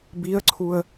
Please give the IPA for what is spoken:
b i ə̯ ǀʰ u ə̯

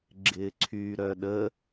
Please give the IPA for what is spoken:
ɡ͡ǁ ɪː ǀʰ y ɾ œ ɗ ə

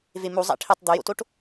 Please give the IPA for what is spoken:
v e m u zˤ æ̰ ʈʰ i tˤ d̪ o j o̰ t o ʈ

